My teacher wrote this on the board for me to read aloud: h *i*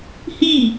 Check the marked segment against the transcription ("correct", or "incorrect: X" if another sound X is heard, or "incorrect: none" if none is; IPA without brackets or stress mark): correct